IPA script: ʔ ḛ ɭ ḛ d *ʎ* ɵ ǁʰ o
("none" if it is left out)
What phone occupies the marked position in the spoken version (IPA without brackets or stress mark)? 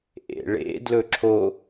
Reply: l